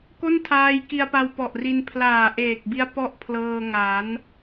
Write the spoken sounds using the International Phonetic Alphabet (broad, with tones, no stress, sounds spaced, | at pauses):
k o˥˩ n tʰ aː˧ j k i˧ a̯ p a˧ w p ɔ˨˩ ʔ r i˧ n pʰ l aː˨˩ ʔ eː˨˩ k̚ b i˦˥ a̯ p ɔ˥˩ ʔ pʰ l ɤː˧ ŋ a˩˦ n